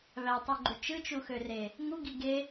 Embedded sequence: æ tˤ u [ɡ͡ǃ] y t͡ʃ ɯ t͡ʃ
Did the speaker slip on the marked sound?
no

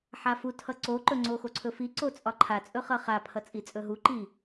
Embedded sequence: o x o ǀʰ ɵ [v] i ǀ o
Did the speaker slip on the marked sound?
yes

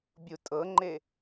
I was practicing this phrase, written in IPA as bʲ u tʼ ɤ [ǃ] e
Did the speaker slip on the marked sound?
yes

